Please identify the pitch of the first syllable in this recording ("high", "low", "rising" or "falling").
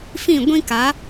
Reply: falling